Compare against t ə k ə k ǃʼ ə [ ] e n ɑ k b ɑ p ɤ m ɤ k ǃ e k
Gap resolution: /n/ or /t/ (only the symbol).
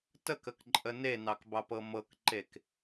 n